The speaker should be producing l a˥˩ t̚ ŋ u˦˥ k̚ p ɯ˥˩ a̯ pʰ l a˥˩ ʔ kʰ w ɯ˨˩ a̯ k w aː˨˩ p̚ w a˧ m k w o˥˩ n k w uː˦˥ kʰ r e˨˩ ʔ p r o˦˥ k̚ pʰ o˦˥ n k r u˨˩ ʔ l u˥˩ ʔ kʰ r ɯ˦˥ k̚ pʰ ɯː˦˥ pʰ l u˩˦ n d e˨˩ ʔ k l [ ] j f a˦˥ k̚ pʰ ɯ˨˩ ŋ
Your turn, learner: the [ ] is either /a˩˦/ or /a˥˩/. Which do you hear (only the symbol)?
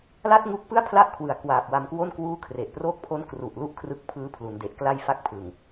a˥˩